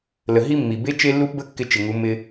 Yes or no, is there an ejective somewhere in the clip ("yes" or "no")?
no